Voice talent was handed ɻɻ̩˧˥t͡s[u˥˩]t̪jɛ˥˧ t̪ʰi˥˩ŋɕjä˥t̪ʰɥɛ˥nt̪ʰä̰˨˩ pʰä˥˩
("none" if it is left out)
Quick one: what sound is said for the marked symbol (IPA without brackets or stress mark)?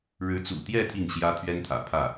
ṵ˨˩